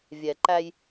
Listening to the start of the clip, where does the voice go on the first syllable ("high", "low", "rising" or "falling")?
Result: low